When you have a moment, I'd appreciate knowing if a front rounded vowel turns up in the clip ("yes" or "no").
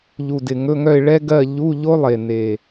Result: yes